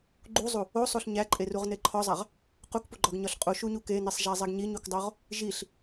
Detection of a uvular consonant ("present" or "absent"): present